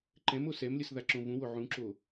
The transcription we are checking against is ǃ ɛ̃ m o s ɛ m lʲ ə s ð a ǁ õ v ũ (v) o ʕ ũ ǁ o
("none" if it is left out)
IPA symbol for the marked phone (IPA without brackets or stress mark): w